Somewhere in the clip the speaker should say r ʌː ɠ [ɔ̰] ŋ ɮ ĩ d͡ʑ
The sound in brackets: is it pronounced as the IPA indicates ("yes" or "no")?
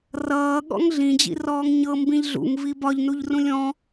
yes